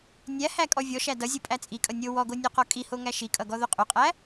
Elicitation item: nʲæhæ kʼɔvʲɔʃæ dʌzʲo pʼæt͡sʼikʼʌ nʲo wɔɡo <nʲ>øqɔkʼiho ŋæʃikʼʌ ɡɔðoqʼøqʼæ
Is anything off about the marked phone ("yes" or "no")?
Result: no